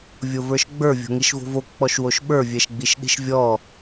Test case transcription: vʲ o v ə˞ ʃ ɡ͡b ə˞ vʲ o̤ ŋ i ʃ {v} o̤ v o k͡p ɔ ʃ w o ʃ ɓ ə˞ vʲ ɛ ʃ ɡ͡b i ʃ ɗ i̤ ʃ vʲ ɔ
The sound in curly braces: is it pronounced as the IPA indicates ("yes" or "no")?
yes